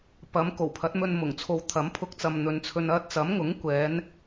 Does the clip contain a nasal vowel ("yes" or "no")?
no